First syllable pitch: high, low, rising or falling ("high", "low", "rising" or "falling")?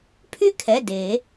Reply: falling